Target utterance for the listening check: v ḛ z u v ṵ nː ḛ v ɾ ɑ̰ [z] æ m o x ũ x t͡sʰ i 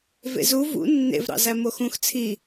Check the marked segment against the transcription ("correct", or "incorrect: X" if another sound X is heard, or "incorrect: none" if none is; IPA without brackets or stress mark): correct